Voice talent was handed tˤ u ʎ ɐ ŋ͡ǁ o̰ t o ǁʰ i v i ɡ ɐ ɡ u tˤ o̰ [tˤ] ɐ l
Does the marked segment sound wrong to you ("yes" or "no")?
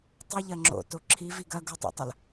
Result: no